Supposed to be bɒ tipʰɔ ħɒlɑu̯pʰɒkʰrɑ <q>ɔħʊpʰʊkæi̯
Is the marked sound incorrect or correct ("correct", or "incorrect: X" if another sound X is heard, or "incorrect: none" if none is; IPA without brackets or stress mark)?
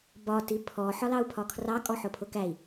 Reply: incorrect: kʼ